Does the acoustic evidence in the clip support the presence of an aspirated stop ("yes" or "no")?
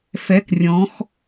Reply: no